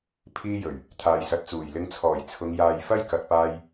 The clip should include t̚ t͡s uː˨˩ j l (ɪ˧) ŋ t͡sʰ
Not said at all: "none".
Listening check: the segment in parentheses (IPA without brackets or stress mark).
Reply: ɪ˧